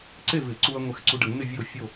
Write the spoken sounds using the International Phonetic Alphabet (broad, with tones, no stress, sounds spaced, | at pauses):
ǀ e˥˨ v ɪ˨˩˦ ǀ u˧ ɐ̯ ŋʷ ɛ˧ x ǀ u˧ ɖ ə˨˩˦ ŋ n ɪ˥˨ vʲ o˥˨ fʲ o˥˨